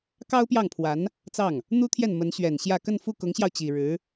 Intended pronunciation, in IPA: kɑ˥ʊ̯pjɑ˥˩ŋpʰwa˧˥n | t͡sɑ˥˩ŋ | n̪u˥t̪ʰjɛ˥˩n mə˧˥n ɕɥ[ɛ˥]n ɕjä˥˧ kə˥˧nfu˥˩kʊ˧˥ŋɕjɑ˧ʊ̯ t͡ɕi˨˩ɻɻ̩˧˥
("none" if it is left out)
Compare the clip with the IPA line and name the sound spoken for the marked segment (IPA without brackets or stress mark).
ɛ˨˩